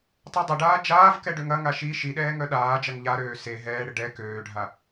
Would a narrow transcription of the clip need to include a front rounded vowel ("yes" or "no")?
yes